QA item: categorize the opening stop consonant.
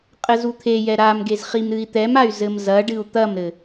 ejective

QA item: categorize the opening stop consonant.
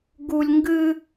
plain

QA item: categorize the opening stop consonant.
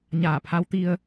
aspirated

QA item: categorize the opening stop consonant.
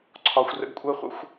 click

